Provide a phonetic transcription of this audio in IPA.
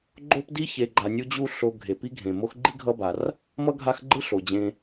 ɡ͡ǃ o˥ p d i˥ ç e˨ ɡ͡ǃ a˨ nʲ u˦ d͡ʑ u˦ ɬ o˨ ɡʱ e˩ p i˦ ɡʱ ẽ˩ m o˦ x ɡ͡ǃ i˥ ɡʱ ʌ˦ b a˩ r | m ʌ˥ ɡʱ a˦ x ɡ͡ǃ ɯ˥ ɬ o˩ d͡ʑ ẽ˨

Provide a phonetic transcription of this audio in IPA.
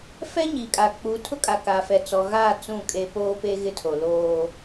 f ɛ˦ ɲ i˨ kʼ aː˨ k͡p uː˨ tʰ ʊ˦ kʼ a˨ k aː˨ f ɛ˨ t͡s ɔ˨ ɣ aː˦˨ t͡s ũ˦˨ kʼ e˦ p oː˦ p eː˦ ɣ ɪ˦ tʰ o˨ l oː˦

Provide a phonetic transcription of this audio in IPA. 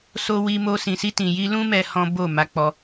s o˧ w i˧ m o˧ s ĩ˨ s i˧ t ĩ˨ j i˧ l ũ˧ m ɛ˦ h ɔ̃˦ b o˦˨ m a˧ k͡p ɔ˧

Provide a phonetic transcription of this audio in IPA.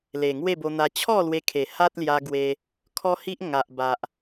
l e˨˩ ŋ w e˥˧ b o˧ n̪ a˧ t͡ɕʰ ɔ˥˧ l w e˧ kʰ e˨˩ h a˦ t̚ l j a˧ ɡ w e˧ | kʰ ɔ˦ h i˦ ʔ ŋ a˨ ʔ b a˨ ʔ

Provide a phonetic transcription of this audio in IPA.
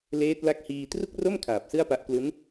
l eː˦˥ t̚ l a˦˥ k̚ h iː˧ t r u˥˩ k̚ r o˥˩ m kʰ aː˨˩ p̚ s ɯ˥˩ a̯ p a˦˥ ʔ k l u˦˥ n

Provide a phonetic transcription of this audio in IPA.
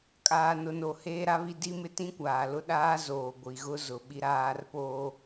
kʼ aː˨ n ʊ˨ n o˨ h eː˦ ɾ a˦ β i˦ d i˦ m ɪ˦˨ t ĩ˦ kʷ aː˨ l ʊ˦ ɗ aː˦ z oː˨ ɡʷ i˨ ɣ ʊ˦ z ʊ˨ ɓ i˦ ɾ aː˦ r p oː˦

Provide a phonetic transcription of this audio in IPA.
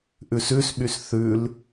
ʔ ʉ s ʉ s ɓ y s θ ʉ l

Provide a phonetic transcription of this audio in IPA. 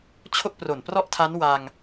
t͡ɕʰ o˥˩ k̚ p r o˨˩ n p r ɔ˥˩ ʔ tʰ a˦˥ n w a˧ ŋ

